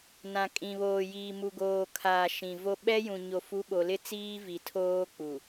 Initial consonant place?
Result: alveolar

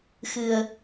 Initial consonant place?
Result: velar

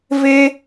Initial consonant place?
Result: labial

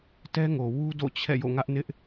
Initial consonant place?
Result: alveolar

